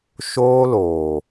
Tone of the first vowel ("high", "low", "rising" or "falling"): high